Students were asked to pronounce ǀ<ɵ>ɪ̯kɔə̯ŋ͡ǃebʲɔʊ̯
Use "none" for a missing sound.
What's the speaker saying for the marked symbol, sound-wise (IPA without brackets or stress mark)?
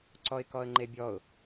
ɔ